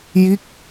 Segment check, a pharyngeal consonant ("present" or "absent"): absent